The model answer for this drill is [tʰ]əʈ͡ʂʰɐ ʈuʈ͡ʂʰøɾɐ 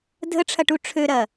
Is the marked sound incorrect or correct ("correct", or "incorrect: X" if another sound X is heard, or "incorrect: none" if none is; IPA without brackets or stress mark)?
incorrect: dʱ